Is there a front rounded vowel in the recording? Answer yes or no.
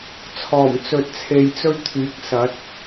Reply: yes